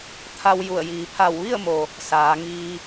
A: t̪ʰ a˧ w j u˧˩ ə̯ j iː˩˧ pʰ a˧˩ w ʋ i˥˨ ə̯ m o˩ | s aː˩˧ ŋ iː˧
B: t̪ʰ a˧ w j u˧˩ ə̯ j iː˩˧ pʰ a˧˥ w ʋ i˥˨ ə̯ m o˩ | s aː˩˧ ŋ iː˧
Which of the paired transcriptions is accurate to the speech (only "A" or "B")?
A